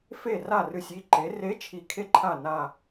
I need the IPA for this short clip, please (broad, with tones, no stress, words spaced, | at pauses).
fe˥˩ ra˥˩rɨ˧˩sʲ i˧˩ǃe˩˧re˨˥ t͡ʃʰi˧˩kʰe˥˧ǃʰa˥˩ na˧˩